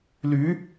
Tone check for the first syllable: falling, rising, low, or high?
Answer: rising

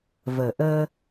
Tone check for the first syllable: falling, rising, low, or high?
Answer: low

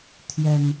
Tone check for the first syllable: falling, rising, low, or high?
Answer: low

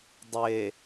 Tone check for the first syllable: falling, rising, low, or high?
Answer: low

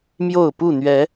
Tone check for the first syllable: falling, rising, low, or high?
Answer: falling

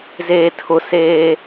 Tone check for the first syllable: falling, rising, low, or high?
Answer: low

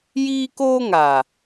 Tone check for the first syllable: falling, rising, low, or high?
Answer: high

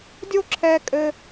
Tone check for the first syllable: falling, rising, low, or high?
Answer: high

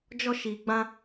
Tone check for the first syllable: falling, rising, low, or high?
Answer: high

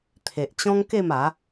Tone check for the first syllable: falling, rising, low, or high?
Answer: low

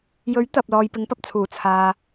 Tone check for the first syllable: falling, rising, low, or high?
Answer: rising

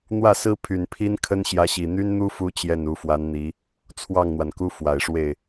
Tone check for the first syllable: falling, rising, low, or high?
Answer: falling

